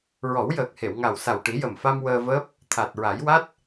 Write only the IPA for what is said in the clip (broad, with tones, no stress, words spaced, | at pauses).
ɹɔ˨˩˦wjəː˨˩k̚he˨˩˨wŋa˨˩w sa˨˩wʈi˨˩˦jə˨˩mfa˧m wəː˧vəː˦˥p̚ | t̪ʰa˨˩t̚ɹa˨˩˦jwa˦˥t̚